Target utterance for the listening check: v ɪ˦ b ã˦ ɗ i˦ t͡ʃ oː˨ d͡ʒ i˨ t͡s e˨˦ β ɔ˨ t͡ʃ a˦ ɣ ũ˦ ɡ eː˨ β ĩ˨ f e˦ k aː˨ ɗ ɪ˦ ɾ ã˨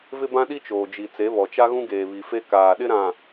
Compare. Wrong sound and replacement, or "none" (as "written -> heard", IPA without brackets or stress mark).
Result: ĩ˨ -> i˨